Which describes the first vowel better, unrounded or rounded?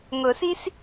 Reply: rounded